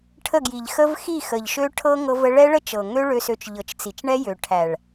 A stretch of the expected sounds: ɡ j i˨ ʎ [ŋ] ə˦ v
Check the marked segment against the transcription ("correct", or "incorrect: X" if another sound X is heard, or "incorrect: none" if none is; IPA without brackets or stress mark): incorrect: x